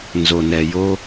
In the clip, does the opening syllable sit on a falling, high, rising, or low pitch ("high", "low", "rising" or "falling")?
low